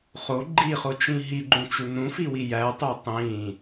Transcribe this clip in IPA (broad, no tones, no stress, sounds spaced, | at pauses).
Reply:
χ o ɡ͡ǃ i χ o t͡ʃ ĩ ɦ i ɡ͡ǃ ũ t͡ʃ u n ũ f i w i j æ tˤ o tˤ ĩ